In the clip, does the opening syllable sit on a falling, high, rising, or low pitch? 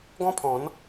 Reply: high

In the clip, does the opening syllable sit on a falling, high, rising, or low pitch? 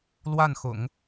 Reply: falling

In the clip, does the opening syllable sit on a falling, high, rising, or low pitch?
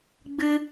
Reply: high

